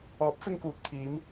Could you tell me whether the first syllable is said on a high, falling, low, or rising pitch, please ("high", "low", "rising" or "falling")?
rising